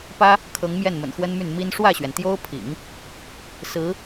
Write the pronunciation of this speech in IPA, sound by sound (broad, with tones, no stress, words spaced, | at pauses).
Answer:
pä˥ | kʰɤ˧˥ŋ mjɛ˥˩nmə̰˨˩nxwə˥nmy˥˩n mi˥n ʂwä˥˩ɕɥɛ˩nt̪jo˥ʊ̯pʰḭ˨˩˦ŋ | sɹ̩˧˥